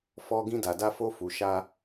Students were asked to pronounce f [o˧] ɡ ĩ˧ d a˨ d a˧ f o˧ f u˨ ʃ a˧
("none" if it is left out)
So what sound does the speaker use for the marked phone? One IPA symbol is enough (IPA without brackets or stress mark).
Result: ɔ˧